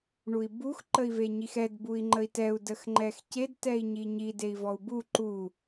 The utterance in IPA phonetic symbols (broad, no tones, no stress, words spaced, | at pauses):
ɳui̯bux ǃəi̯veɲixɛd bui̯ŋ͡ǃəi̯tɛu̯ dəxŋ͡ǃɛxced tɛi̯ɲiɲi dei̯vɔu̯bu ǃu